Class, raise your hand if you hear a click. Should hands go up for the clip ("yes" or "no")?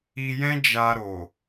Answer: no